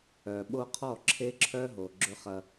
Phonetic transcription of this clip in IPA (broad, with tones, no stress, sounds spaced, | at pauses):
œ˨ ɓ o˦ qʰ ɔ˦˨ ǁʰ e˦ ǁʰ œ˦ ɦ o˨ ɡ͡ǁ ø˦ χ ɐ˦